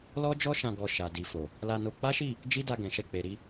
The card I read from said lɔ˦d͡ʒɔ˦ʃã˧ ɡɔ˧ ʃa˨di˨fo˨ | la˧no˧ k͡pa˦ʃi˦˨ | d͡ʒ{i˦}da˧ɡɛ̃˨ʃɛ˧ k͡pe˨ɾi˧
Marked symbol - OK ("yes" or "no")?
yes